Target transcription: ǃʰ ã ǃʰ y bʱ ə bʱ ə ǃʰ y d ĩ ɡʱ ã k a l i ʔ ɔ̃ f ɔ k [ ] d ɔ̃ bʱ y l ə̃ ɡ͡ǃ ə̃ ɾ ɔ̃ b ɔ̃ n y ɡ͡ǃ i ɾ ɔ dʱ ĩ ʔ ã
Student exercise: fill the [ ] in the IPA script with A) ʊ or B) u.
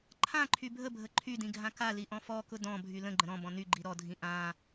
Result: A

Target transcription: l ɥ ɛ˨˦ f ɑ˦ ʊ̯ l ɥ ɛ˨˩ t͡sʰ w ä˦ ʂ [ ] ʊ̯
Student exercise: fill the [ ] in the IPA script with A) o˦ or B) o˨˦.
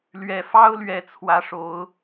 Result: A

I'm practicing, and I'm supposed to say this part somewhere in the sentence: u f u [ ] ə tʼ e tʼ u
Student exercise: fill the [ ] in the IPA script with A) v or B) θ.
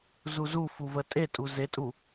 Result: A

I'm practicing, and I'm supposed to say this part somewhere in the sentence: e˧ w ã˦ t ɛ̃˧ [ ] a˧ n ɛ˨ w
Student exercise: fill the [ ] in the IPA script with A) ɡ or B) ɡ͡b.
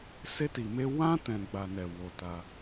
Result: B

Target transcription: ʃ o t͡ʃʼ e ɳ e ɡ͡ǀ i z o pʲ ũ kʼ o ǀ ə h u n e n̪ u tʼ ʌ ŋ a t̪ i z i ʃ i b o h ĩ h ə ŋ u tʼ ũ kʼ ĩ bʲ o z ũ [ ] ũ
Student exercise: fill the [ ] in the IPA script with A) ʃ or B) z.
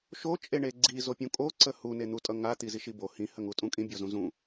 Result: B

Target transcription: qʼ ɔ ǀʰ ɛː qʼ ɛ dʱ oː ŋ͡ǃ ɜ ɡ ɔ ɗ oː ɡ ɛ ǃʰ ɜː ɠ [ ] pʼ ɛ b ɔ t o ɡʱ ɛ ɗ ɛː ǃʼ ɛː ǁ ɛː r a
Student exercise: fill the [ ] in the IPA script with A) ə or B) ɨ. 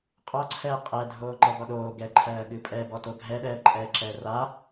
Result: B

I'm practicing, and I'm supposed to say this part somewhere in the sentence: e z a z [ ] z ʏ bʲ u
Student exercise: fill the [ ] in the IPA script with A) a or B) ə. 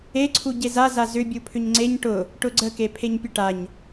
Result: A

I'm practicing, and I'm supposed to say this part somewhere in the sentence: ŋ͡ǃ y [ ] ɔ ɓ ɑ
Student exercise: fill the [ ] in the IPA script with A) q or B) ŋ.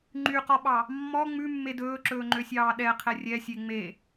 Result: A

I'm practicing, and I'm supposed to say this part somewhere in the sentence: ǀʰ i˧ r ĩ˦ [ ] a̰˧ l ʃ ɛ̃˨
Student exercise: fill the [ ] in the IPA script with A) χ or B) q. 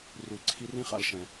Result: A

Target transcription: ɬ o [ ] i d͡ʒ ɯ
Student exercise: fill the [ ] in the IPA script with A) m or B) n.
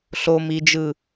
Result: A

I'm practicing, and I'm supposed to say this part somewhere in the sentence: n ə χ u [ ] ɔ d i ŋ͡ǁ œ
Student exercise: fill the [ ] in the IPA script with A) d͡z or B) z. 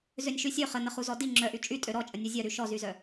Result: B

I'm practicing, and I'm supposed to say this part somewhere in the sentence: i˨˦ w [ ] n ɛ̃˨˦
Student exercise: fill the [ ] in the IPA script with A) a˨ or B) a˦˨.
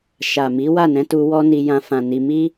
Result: B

